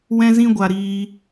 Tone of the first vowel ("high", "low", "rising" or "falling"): high